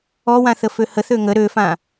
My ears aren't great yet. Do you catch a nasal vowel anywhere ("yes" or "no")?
yes